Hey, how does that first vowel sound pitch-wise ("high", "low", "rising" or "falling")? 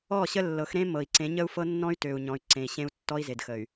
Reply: falling